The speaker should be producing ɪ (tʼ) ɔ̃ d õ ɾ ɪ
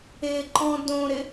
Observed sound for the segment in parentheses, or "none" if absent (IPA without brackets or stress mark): ǃ